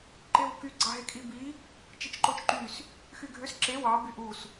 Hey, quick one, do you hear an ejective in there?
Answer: yes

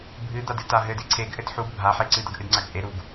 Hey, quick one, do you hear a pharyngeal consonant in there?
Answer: yes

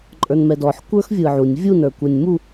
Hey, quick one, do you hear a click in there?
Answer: yes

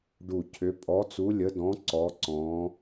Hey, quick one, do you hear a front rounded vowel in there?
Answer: yes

